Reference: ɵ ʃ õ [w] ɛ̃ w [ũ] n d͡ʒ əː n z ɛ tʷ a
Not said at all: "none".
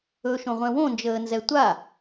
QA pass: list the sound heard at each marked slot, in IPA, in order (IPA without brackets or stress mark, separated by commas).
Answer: ʁʷ, õ